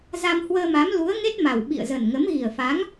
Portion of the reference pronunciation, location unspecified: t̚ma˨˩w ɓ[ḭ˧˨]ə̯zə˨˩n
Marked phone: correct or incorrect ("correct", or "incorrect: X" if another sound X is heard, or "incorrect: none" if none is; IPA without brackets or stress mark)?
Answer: correct